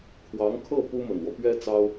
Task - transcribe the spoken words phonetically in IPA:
kʰ w ɑ˧˥ ŋ kʰ ɤ˥˩ p u˥ m ə˨˩ n w ɔ˦ p ɥ ɛ˥ t͡s ɑ˥ ʊ̯

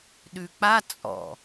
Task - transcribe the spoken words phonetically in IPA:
ɗ ʉ k͡p a t͡sʼ ɔ̰

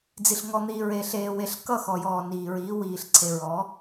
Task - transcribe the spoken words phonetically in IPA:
d͡z i˨ ɬ ŋ ɔ˨ n̪ iː˨ ɹ eː˨ ɬ eː˨ w e˨ ɬ k ʌ˦˨ x ɔ˨ j ɔː˨ n iː˨ ɹ iː˨˦ w iː˨ ɬ ǀʰ e˨ ɹ ɔː˨˦

